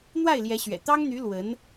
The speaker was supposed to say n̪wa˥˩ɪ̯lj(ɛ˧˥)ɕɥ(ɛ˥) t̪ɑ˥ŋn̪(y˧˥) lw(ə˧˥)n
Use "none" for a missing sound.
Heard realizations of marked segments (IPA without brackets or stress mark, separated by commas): ɛ˧˥, ɛ̰˨˩, y˧˥, ə˧˥